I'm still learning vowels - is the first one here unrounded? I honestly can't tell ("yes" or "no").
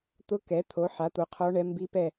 no